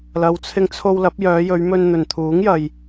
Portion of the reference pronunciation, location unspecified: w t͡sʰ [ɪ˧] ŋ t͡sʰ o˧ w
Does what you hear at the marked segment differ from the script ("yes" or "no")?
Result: no